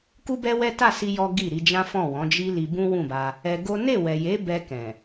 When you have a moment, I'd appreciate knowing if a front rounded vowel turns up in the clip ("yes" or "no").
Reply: no